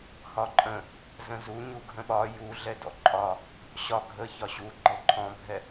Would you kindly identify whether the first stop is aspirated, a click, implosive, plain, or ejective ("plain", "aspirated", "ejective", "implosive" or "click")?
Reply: click